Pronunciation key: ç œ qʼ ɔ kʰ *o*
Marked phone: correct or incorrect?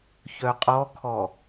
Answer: incorrect